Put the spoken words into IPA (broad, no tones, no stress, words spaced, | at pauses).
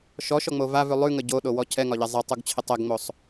ʃɔʃɔŋ͡mo vavʉ lˠʉŋə ɟoɗowɔ cʰɛŋɒʎɛ zˤɛtˤuɡt͡ɕʰɪ tˤɛɡŋ͡mosˤ